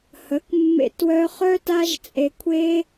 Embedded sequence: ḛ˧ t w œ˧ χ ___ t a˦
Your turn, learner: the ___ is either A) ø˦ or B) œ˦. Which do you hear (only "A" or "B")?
B